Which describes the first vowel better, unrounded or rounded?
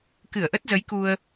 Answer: unrounded